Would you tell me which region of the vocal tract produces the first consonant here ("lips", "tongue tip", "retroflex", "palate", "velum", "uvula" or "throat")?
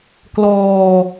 velum